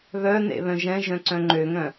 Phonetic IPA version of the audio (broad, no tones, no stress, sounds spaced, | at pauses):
β œ n ḛ β œ̃ ʒ ɛ̃ ʒ œ̃ ǀ œ̃ ŋ͡ǃ ø ŋ œ̃